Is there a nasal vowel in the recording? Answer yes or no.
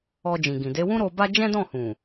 yes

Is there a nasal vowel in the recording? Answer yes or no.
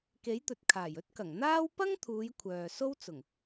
no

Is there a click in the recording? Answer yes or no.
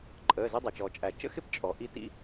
yes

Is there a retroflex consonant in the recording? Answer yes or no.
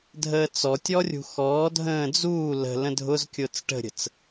yes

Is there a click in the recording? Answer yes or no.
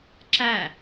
yes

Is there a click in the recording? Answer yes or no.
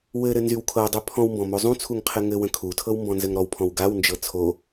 no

